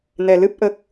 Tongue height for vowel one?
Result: mid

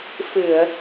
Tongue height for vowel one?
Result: high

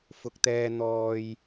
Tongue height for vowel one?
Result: high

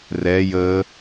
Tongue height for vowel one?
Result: mid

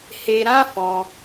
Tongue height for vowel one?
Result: mid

